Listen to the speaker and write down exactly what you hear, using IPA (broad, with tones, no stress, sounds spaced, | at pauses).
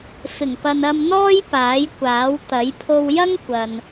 f ɪ˨˩ ŋ p ɐ˨ n ɐ˧ m n̪ ɔː˥ j p aː˨˥ j kʷ aː˨˥ w t̪ ɐ˨˥ j pʰ o˧ w j ɐ˥ ŋ kʷ ɐ˨ n